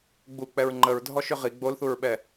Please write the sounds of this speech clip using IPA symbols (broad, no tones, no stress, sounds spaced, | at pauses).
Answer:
ɡ͡b u k͡p ɛ ɹ ŋ͡ǃ ə ɹ dʱ ɔ ʃ ʏ ʁ i ɡ͡b o l θ u ɹ ɓ ɛ